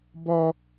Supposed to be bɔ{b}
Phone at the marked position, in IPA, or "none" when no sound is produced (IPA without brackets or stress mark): none